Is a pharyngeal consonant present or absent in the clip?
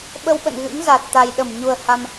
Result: absent